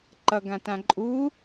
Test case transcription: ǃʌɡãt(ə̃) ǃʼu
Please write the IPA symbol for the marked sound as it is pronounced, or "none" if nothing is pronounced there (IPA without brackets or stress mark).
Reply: ã